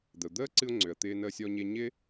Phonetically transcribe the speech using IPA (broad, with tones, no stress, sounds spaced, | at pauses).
d̪ ə˩ ʊ̯ d̪ əː˥ ǀ ɨ˧ ʊ̯ ŋ͡ǀ ø˩ ə̯ t̪ ɪː˧ n əː˧ sʲ ɔ˧ ɲ e˧ ɲ ɪ˥